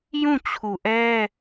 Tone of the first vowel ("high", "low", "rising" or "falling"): falling